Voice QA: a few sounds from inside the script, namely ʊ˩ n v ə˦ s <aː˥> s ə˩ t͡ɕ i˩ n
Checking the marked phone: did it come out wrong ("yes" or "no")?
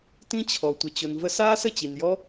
no